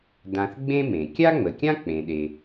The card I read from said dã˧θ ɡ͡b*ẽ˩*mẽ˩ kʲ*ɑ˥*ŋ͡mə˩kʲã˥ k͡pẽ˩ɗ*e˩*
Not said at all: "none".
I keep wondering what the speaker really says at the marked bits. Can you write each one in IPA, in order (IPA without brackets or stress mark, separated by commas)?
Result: ẽ˥, a˥, e˩